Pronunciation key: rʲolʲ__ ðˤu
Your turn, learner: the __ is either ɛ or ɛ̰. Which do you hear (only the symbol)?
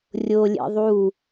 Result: ɛ̰